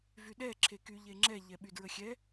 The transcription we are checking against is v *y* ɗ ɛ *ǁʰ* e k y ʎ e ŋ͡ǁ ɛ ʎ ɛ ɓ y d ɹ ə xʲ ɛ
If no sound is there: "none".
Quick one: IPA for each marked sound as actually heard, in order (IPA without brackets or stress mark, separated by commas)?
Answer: y, ǁʰ